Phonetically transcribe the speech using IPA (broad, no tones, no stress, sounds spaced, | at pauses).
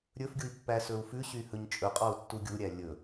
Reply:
ɾʲ ɵ f ɡʲ u i̯ pː æ s ɵ u̯ f ʉ ɕ y h ɵ ɲ t͡ʃʼ ɵ qʼ ɔ u̯ tː u ɡʲ u ɾʲ æ lʲ ɵ